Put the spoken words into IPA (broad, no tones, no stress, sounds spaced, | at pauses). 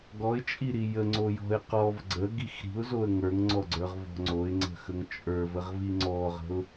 ɡ ɔ ɪ̯ t͡ʃʼ i ɾ i j ə ŋ͡ǀ o j ɔ̤ ɪ̯ q ɔ v ɡ͡ǀ ə ɡ i x ɾ i̤ ʊ̯ z o ə̯ ŋ ə˞ ŋ ŋ͡ǀ ɔ ɡ͡ǀ ə˞ ʁ v ɔ̤ ŋ͡ǀ o ɪ̯ ŋ͡ǀ ə̤ x ə ŋ t͡ʃʼ ə˞ v ə ʁ v i ŋ͡ǀ ɔ ʁ ə̤ ʊ̯